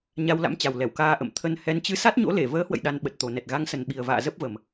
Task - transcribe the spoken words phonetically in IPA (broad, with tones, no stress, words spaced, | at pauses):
ɲa˧wla̰˧˥m t͡ɕa˨˩wlɛ˧˩wkaː˧ ʔə̰˧˨m t̪ʰə˧nhɛ˨˦n t͡ɕɨ˨˦sa˦˥t̚ɲo̰˧˥le˧˩ vəː˨˦hwə̰˧˨j ɗa˧nɓə˨˩t̚t̪o˨˩ nɛ˨˩t̚ɣa˨˦ŋsə˨˩n ɓi˨˩ə̯va̰ː˧˨ zə˦˥p̚və˨˩m